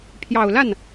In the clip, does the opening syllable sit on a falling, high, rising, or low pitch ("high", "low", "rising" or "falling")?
low